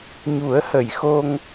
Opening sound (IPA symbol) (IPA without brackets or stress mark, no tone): ɲ